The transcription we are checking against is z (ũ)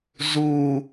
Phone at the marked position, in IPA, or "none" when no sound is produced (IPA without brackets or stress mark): u